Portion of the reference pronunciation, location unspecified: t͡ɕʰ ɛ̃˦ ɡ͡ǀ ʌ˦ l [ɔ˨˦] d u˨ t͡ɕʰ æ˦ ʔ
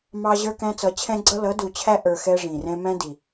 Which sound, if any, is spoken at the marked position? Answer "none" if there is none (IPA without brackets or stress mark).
ʌ˨˦